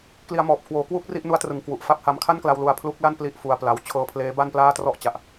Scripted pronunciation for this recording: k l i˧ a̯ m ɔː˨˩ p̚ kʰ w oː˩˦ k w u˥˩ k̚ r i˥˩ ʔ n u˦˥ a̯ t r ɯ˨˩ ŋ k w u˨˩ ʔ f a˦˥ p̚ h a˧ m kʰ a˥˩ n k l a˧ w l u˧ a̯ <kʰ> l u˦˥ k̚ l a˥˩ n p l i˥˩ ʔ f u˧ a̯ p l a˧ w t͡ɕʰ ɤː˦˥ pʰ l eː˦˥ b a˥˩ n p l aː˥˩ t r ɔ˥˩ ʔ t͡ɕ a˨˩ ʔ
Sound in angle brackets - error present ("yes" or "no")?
yes